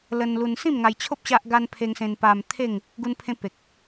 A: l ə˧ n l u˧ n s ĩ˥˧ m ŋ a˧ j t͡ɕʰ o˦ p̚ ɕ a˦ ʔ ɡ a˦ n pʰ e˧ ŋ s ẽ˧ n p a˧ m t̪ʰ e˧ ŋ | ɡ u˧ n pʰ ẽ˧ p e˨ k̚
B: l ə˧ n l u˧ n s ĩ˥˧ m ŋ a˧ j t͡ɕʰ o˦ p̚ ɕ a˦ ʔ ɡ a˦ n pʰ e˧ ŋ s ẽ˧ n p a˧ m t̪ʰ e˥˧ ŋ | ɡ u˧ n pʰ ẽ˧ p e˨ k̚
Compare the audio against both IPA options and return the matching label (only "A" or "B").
B